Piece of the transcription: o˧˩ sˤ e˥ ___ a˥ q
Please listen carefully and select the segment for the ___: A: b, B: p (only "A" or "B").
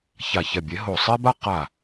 A